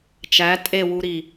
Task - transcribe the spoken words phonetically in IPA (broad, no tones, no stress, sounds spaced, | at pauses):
t͡ʃ æ tʼ e w u ɾ i